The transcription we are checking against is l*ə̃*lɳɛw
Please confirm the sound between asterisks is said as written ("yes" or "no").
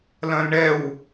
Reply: no